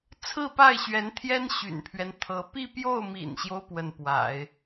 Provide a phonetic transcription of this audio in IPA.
t͡sʰ ɹ̩˥˧ p a˥˩ ɪ̯ ɕ ɥ ɛ˧˥ n t̪ʰ j ɛ˥ n ɕ y̰˨˩ n pʰ ɥ ɛ˦ n t̪ʰ ɤ˧˥ p i˥˧ p j o˥˩ ʊ̯ m ḭ˨˩ n ɕ j o˦ ʊ̯ p w ə˥˩ n p w a̰˨˩˦ ɪ̯

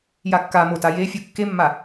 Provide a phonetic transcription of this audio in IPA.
j a kː a m o t a j e fʲ o kː e mː a

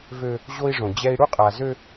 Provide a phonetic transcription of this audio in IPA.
v ø˦ | ʑ o˦ i̯ ʐ õ˨ d͡ʑ ɛ˦ i̯ ɽ u˦ qʼ a˨ z ø˦

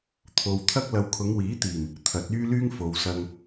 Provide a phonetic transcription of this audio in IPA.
t̪ʰ o˨ w t̪ʰ ɐ˥ k̚ l ɐ˨ w kʰ ʊ˨˧ ŋ w iː˨˥ t̪ iː˨˩ m | t̪ʰ ɐ˨˥ t̚ yː˥ l yː˥ ŋ f o˨ w s ɐ˧ ŋ

